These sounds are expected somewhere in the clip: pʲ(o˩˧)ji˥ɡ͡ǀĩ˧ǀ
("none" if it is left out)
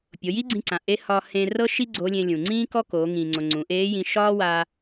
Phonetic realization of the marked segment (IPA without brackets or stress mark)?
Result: o˩˧